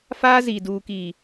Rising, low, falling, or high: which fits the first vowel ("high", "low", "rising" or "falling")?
high